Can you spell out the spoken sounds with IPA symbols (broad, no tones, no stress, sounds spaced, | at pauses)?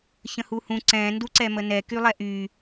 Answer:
ç ə̃ h u h ũ ǀ ɛ̃ n d u ǀ ɛ m ə n ɛ k y lˠ ɛ ʔ y